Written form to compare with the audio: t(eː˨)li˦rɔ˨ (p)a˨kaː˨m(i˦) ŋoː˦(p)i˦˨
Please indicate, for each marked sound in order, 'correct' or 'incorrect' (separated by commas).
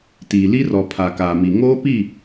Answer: incorrect, incorrect, incorrect, correct